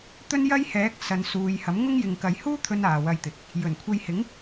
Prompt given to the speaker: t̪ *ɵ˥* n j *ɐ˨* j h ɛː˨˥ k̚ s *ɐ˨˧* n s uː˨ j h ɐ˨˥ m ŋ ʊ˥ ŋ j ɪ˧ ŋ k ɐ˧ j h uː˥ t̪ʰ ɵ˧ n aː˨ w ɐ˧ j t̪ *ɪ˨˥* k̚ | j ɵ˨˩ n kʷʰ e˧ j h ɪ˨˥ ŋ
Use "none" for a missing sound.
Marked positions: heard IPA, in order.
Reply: ɵ˥, ɐ˥, ɐ˨, ɪ˨

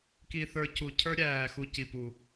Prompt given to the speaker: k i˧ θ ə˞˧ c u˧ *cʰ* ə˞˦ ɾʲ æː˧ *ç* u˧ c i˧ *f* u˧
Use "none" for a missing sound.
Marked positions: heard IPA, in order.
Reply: cʰ, x, p

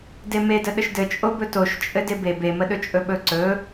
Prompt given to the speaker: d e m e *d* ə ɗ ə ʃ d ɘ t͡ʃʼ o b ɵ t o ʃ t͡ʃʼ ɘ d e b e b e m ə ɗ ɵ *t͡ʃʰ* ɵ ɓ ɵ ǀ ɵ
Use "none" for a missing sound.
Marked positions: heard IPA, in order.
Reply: d, t͡ʃʼ

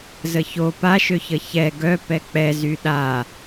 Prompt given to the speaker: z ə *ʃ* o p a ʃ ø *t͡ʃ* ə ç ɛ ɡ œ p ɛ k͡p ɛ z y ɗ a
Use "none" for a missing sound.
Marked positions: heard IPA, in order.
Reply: ç, ç

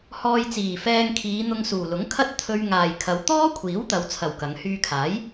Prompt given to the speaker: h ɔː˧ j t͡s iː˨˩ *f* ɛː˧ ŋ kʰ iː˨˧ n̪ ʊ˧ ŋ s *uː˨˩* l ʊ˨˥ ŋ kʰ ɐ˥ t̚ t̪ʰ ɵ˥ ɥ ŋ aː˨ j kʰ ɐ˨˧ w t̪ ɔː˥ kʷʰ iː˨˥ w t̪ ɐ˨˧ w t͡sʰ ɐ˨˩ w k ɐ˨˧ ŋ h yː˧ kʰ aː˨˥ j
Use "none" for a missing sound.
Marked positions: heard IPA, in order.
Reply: f, uː˨˩

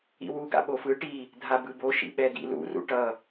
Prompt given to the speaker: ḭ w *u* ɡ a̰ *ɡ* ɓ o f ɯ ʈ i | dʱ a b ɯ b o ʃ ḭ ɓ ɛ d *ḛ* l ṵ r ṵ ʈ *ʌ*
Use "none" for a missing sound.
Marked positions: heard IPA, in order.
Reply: u, none, ḭ, ʌ

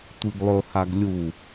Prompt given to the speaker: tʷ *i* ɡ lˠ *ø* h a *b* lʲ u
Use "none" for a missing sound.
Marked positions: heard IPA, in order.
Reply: i, ɵ, ɡ

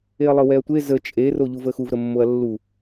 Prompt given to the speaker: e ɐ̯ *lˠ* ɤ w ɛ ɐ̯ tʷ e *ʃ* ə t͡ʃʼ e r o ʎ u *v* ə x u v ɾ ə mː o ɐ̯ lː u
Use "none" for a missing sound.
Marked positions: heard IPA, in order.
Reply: lˠ, z, v

